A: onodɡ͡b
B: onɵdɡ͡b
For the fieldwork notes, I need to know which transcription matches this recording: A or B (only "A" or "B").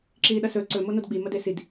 A